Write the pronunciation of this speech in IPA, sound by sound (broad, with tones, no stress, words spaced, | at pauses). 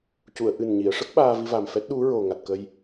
cu˨˩˨ə̯ʔɨ˨˩n ɲi˨˩˨ə̯ʂə˦˥k̚ ɓaː˧vi˧va˨˩mfɛ˦˥t̚ ɗu˧˥ɹo˨˩ ŋa˨˩t̚kə˧j